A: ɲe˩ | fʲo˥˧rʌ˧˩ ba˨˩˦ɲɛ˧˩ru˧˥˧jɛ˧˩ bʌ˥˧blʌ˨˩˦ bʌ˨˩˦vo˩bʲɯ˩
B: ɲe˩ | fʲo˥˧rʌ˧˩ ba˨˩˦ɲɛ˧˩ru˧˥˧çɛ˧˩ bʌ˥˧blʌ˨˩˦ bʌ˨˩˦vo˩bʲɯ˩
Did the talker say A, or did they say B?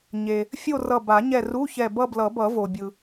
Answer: B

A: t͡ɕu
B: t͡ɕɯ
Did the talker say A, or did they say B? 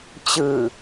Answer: B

